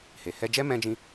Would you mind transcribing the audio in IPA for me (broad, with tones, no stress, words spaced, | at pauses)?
he˨ hɛ˧d͡ʒɛ˦ mɛ̃˦d͡ʒĩ˦